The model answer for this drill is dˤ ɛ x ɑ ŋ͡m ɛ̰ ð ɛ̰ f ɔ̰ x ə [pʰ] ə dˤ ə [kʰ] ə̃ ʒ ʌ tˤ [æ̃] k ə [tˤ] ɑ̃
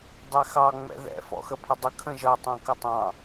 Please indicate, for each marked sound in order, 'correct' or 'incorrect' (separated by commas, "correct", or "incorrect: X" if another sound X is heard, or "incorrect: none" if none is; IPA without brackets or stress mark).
correct, correct, correct, correct